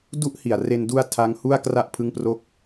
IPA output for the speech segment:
d u˦˥ ʔ h i˨˩ a̯ r e˧ n d u˧ a̯ tʰ a˦˥ ŋ h u˥˩ a̯ k r a˥˩ ʔ pʰ ɯ˦˥ ŋ p r o˦˥ k̚

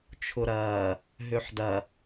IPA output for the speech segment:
t͡ʃʰ ʊ ɾ ɐː | ɦ ø ħ d ɐ

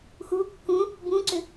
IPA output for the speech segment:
x u kː ũ | b ũ ǀ ʏ

